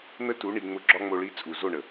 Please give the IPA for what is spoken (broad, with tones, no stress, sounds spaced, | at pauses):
n̪ ə˦ t u˨˦ ɳ i˨ ŋ͡m ʊ˨˦ ɡ͡ǁ ɒ˧ ŋ͡m o˨ ɭ i˨˦ t͡sʼ u˨ z o˦˨ ɳ ə˨